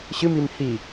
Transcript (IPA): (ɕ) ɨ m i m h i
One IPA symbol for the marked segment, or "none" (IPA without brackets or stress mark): ɕ